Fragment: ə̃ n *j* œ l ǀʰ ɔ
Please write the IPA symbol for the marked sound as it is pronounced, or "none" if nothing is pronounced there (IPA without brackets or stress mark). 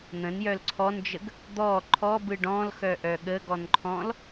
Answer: j